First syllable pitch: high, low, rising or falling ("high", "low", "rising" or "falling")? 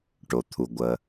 low